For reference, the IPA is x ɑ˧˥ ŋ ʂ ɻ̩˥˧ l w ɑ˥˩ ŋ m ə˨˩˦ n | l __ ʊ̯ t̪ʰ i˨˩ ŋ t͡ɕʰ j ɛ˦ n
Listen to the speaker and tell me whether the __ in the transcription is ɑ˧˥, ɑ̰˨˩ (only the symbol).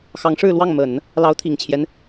ɑ˧˥